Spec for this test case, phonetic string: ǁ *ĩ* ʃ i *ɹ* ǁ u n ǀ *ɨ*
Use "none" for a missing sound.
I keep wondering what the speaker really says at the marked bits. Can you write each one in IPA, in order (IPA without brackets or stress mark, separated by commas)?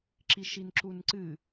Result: i, n, ɨ